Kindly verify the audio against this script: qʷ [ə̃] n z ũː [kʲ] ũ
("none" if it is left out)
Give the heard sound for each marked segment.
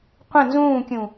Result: ə̃, kʲ

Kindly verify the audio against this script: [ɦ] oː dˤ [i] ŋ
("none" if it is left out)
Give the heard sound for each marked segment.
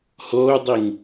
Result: h, i

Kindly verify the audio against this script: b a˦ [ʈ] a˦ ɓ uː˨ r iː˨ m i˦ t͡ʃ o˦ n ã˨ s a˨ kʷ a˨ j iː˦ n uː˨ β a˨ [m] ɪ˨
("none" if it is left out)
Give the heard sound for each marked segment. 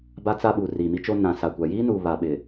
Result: t͡s, ɓ

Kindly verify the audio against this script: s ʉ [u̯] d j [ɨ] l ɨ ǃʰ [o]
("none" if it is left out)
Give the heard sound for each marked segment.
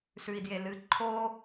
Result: i̯, e, o

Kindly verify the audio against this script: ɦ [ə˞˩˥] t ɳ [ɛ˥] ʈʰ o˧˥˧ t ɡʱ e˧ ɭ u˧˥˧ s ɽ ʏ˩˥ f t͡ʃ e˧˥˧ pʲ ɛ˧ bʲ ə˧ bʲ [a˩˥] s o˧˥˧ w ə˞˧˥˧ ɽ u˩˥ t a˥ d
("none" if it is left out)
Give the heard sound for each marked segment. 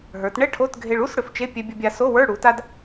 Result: ə˞˩˥, ɛ˥, a˧

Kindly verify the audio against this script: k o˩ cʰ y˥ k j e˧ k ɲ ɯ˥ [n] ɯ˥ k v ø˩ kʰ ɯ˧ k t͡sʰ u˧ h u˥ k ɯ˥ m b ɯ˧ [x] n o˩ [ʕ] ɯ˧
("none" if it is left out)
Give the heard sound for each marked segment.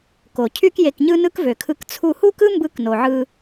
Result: n, k, ʕ

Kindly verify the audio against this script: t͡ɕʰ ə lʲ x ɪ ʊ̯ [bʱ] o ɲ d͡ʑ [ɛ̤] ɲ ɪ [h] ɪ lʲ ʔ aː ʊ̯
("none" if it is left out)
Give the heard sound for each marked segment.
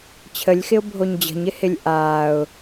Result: bʱ, ə̤, h

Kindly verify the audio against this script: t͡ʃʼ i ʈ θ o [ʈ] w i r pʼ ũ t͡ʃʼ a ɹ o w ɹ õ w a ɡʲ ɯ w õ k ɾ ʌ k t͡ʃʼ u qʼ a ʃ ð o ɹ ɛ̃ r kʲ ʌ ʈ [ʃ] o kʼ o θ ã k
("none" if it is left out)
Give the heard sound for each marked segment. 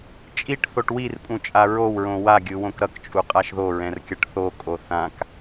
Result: ʈ, θ

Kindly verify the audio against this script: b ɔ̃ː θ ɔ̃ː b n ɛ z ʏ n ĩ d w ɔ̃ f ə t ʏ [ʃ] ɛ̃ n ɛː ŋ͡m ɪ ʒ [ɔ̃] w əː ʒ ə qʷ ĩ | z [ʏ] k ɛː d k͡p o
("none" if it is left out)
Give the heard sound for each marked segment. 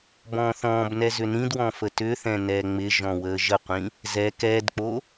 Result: θ, ɔ̃, ɛ

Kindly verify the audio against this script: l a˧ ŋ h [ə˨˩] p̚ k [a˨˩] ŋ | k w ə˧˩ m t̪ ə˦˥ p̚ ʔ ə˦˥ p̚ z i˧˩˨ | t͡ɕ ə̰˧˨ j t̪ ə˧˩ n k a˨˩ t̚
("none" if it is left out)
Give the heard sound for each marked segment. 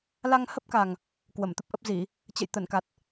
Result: ə˦˥, a˨˩

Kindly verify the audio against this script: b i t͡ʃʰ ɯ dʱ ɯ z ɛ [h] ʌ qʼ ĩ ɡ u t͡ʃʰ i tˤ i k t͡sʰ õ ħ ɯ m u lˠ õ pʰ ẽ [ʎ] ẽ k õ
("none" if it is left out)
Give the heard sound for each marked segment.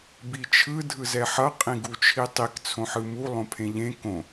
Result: ħ, ʎ

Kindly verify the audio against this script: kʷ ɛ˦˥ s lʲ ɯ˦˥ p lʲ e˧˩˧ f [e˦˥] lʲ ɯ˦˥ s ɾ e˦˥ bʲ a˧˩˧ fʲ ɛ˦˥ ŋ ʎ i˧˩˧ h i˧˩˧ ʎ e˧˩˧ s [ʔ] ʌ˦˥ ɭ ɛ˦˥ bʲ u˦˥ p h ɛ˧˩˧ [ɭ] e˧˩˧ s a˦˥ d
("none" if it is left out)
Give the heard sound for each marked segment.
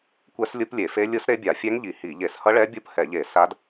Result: e˦˥, h, ʎ

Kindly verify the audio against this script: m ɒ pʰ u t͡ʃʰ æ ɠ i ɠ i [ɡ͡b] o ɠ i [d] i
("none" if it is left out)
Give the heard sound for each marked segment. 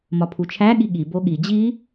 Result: b, d͡ʑ

